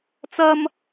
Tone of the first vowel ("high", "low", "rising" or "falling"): high